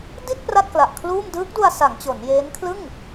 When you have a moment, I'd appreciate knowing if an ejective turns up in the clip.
no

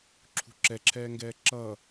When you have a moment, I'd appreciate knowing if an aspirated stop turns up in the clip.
yes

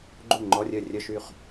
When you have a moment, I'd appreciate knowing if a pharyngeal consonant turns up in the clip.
no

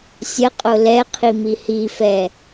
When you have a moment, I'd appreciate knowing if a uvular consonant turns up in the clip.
yes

